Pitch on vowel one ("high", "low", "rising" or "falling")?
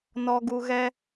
low